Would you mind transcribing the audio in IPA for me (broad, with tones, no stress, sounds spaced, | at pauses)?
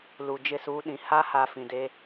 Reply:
l u˨ d͡ʒ ɪ˦˨ s uː˦ ɗ ĩ˨ h a˦ h a˨ f ĩ˨ d e˦